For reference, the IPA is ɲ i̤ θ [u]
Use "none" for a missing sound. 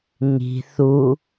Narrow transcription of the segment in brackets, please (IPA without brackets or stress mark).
u